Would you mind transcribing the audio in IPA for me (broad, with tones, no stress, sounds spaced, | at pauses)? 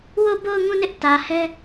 w o˦˨ b o˦˨ ʊ̯ ŋ ũ˦˨ n ɪ˦ ʔ t ä˨ h ɛ˦